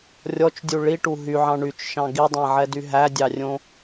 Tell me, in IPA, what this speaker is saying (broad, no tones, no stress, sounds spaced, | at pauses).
rʲ ɔ t͡ʃ dʲ u ɭ i ʈ u ɦ y ʕ ɑ̃ ɳ y t͡ʃ ʃ ɑ̃ ɡ i dˤ æ̃ ʕ ɛ d y ɦ æ dʲ ɑ rʲ õ